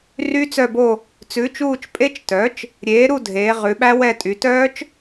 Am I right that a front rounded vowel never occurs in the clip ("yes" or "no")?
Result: no